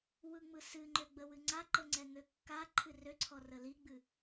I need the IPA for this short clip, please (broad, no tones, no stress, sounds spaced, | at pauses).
w ɯ ŋ͡m ɯ s ɨ ŋ͡ǃ ø ɡ͡b ə w ɨ ŋ͡ǀ a ǃ ə ŋ͡ǀ ɛ ŋ ø kː a ǃʰ ɨ r ø ǀʰ ɔ r ə l i ɡ͡b ɨ